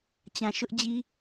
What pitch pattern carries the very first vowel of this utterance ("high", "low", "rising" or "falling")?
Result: low